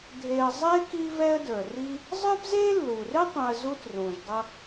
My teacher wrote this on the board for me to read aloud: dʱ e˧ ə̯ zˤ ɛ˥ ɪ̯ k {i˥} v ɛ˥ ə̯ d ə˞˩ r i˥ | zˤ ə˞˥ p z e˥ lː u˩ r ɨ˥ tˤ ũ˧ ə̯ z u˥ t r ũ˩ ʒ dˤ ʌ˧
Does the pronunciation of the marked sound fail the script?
no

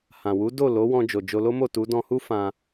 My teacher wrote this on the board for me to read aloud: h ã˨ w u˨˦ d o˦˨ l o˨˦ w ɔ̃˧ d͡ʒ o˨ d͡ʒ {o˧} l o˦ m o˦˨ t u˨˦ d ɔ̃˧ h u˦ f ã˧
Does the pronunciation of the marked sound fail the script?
no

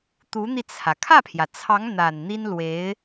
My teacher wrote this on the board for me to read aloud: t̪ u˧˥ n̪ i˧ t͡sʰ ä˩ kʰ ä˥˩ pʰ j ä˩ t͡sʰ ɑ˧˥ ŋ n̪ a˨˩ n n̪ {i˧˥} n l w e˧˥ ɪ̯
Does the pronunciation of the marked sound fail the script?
yes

